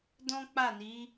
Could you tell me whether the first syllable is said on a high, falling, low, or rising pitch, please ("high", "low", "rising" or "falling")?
high